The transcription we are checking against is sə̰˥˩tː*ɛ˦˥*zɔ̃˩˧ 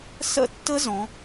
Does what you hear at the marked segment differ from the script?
yes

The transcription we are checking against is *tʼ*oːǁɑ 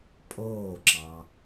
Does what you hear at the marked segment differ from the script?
yes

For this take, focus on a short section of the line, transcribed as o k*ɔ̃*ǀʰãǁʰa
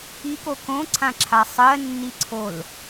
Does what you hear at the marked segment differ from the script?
yes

